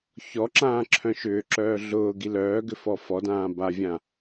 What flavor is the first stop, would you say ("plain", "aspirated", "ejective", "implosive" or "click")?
click